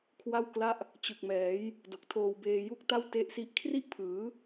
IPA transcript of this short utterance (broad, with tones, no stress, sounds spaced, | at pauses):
kʰ w a˥˩ w k l a˥˩ ʔ | t͡ɕ ɯ˨˩ k̚ m ɛː˩˦ j | d o˨˩ k̚ tʰ oː˧ w b eː˧ j u˥˩ k̚ t a˥˩ w t e˦˥ ʔ s i˦˥ ʔ kʰ r i˥˩ ʔ pʰ ɯː˩˦